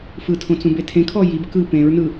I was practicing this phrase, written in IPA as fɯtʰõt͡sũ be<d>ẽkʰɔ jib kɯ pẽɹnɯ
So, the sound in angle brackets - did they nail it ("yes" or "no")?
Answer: no